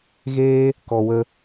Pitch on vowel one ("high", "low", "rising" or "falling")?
high